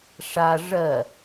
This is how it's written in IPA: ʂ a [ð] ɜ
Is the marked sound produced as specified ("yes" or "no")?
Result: no